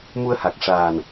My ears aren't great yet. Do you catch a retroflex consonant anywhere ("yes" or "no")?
yes